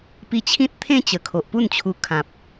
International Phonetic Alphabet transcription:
pi˧t͡ɕʰĩ˦t̚t̪ʰẽ˦ t͡ɕə˨˩kʰo˨ʔpu˥˧nt͡ɕʰu˧ kʰã˨p̚

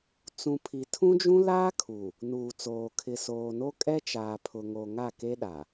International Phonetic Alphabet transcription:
t͡sũ˨pʰi˨tʰũ˦d͡ʒũ˦ laː˦kʰu˨ | nuː˨t͡soː˨ kʰɪ˨soː˨no˦kʼɛ˦ t͡ʃaː˨pʰʊ˨ŋo˨ ŋa˦˨ke˦ ɗa˨

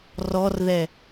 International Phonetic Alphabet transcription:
rɔrðɛ

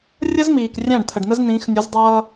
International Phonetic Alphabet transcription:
rʲə˦zmiː˨k rʲæ̃˦˨ɖt̪ʰə˨ɖnə˦z nĩː˨˦xnʲu˨˦zdˤʌː˦

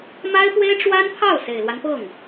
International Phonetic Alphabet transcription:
ma˥ɪ̯pwe˥ɪ̯ ʈ͡ʂwa˥npʰɑ˥˩ʊ̯ se˨˩ɪ̯lwa˦npɤ˥˩ŋ

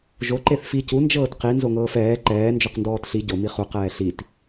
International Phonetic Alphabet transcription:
ʒo ǃeθfi cu nd͡ʒɤːtqi nzoŋɤːfɛː ǃɛː nd͡ʒoqndɔːtɬi ɟo miχu qɛːɬit

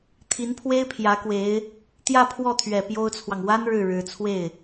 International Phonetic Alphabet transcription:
t̪ʰi˧˥npʰwe˥ɪ̯ pʰjä˧˥kwe˧˥ɪ̯ | t̪jä˥˧pʰwɔ˥˩t̪ʰɥɛ˨˩ pjo˥ʊ̯t͡sʰwɑ˨ŋ wa˥n ɻɻ̩˥˩ɻɻ̩˧˥ t͡sʰwe˥˩ɪ̯

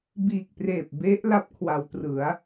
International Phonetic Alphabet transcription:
biː˨˩k̚preː˨˩p̚ be˦˥ʔ la˦˥p̚kʰwa˩˦wtrɯ˩˦a̯

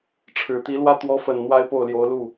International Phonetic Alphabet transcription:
ʈ͡ʂʰɻ̩˨˩t̪i˧˥lwä˥˩ t̪wɔ˧˥fə˨˩n n̪wa˥ɪ̯po˥˩ʊ̯ljo˧˥ʊ̯lu˥˩

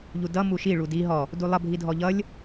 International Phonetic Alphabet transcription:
ʎudʌ muʃi ɭudi ɦɔ | dulˠʌ bʱidʱɔʎʌlʲ

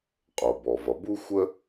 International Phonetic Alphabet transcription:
qʼo˩bɔ˩vʌ˩ bu˥xʷə˥

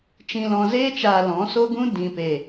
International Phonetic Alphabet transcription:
t͡ʃĩ˨lɔ̃˨ zeː˧t͡ʃaː˨ lɔ̃˨˦so˦ɡũ˦ dĩ˨pe˨

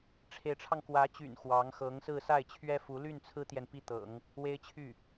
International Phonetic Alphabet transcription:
ʈ͡ʂʰe˧˥ɪ̯ʈ͡ʂʰɑ˧ŋ kwä˧˥t͡ɕy̰˨˩n xwɑ˧˥ŋxɤ˧˥ŋsɹ̩˥˧ sa˥˩ɪ̯t͡ɕʰɥɛ˥fu˧˥ ly˥˩nt͡sʰɹ̩˥t̪jɛ˨n pi˥˩t̪ɤ̰˨˩˦ŋ | we˥ɪ̯t͡ɕʰy˥˩

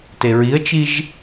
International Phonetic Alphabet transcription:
teɹiə̯t͡ʃiʒ

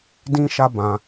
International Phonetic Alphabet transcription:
dĩ˦ʃa˦ bã˧

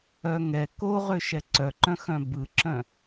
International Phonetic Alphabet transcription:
œŋɛ koʁø ʃɛǀœǃœ̃ xœ̃bɯǁœ̃

